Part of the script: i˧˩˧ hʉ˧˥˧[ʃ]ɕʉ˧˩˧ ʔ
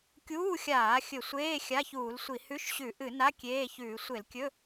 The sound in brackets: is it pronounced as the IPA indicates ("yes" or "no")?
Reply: yes